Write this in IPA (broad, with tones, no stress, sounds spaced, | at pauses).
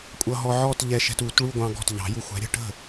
kʷʼ ʌ˧ ɦ ɔ˧ ʕ ɔ˥˧ t ʎ ɛ˧ ʃ ɛ̤˧ t u˨˩˦ t ɭ u˥˧ ɡʷ ɑ̃˧ ɡ ɔ̤˥˩ t ʎ ɑ̤˨˩˦ j u˧ xʷ æ̤˨˥ ɾʲ ə̤˥˧ ʈ ə̤˥˩